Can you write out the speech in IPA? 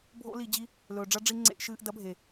bʱ o̰˦ l i˧ d͡ʑ i˦ | l ɵː˨ ɖ͡ʐ ɐ˦ ɖ͡ʐ i˧ ŋ͡ǀ ḛ˧ ʔ ʃ ɨː˧ ʔ d ɐ˨˦ bʱ e˨

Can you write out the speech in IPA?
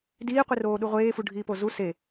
d iː qʷ i r oː ɗ u ʁʷ eː f u ɖʱ iː p o z u s e

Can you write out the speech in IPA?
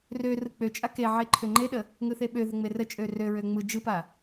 r ø r ɯ k͡p ø t͡ʃʼ a k e ʕ e ǃʰ ø ŋ͡ǃ e ɗ ə | ŋ ɯ θ e ɓ ø ð ə ŋ͡m e r ə t͡ʃʼ ø r ø ɹ ø ŋ͡m ɯ d͡ʒ ɯ p a

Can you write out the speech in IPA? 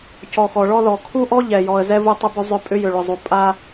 c ɔ˨ x ɔ˨ ɭ ɔ˦ ð ɔ˨ kʰ u˦ ʔ ɔ˦ ʎ ɛ˨ j ɔ˨ ə̯ z ɛ˦ v u˦ tˤ ʏ˦ b ʏ˦ zˤ ʏ˦ pʼ ʏ˦ j ʏ˨ ɭ ʏ˨ zˤ u˨ pʼ a˦

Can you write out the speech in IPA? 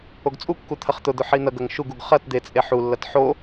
o ɡ t͡sʼ u kː u t̪ʰ ɐ χ t̪ ʊ d̪ ʊ ħ i n̪ ɐ ɡ ɐ ŋ ʃ u ɡ u ɡ χ ɐ t d̪ e t͡sʼ e ħ u lː ɐ t ħ o

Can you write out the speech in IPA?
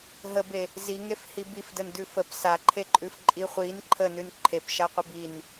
ɦ ə b e | z i ŋ e f h i b i f d ə n d ʉ f ə p s a ǃʰ e ǃʼ ʉ f ǃʼ i χʷ i n ǃʰ ə n ʉ n ǃʰ e p ʃ a qʷ ə b i n

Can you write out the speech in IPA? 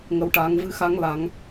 ŋ ə˧ w ʈ aː˧ ŋ v ɨ˧ x a˧˥ ŋ l a˧˥ ŋ

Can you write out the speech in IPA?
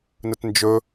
n ə t n d͡ʒ ɵ

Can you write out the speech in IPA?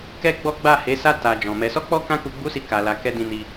k ɛ˦ ɡ͡b ɔ˦ ɡ͡b a˦˨ h e˨˦ s a˧ t a˨ d͡ʒ ɔ̃˨ m ɛ˧ s ɔ˦ k͡p ɔ˦ k ã˦ k u˧ ɡ͡b u˦ s i˧ k a˧ l a˧ k ɛ˧ d ĩ˧ n i˧

